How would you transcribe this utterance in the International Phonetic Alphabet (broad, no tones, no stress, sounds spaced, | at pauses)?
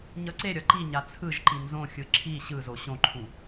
ɲ ʌ ǀ e ɾʲ ʌ ǃ i ɲ a t͡sʰ ɯ ʒ ǃ i n z õ xʲ ɯ ǁʰ i ɕ ɯ z o ɕ õ ǃʰ ũ